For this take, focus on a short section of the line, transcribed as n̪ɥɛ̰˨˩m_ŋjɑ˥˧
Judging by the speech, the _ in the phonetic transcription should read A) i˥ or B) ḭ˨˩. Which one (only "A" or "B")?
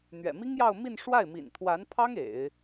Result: A